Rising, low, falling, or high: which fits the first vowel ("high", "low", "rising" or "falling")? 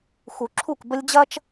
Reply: low